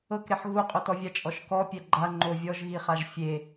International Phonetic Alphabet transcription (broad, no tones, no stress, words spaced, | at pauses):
ɤkɾeħ ɣuqʼotɔvʲa t͡ʃʼɔʃkɔpʲɛ ɡ͡ǃa ŋ͡ǃovʲɔʒɣiχaʒ fʲe